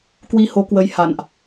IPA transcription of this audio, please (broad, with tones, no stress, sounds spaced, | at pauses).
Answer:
k w i˧ h o˨˦ k w ə˨˦ j h a̰˧˨ n ʔ